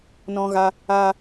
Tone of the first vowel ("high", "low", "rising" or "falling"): high